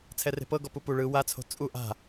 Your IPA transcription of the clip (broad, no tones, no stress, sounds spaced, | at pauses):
t͡sʰ ɛ r e̤ p ɤ ɡ ɔ p u p u ɭ ɯ w a t͡sʰ o̤ t͡sʼ u ʔ a̤